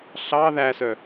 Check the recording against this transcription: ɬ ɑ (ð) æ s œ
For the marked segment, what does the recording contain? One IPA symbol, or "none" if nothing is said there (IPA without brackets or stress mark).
ð